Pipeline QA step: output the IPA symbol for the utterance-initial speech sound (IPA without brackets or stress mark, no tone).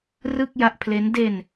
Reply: r